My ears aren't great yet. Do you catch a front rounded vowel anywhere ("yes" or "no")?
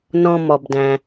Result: no